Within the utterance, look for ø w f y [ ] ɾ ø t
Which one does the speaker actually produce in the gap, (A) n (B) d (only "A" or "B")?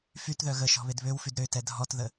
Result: B